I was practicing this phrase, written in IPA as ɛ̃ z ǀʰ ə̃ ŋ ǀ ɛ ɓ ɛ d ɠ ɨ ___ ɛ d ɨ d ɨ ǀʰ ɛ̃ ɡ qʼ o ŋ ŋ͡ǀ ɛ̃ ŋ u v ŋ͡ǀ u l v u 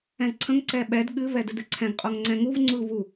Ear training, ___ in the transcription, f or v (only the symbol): v